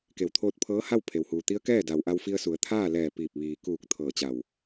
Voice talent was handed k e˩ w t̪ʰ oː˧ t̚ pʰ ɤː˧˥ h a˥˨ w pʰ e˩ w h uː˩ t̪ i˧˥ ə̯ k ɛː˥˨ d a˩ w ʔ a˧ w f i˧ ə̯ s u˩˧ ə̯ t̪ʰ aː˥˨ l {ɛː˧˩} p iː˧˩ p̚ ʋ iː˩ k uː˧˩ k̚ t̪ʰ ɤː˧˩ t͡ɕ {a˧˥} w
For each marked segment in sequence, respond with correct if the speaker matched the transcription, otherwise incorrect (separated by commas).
correct, incorrect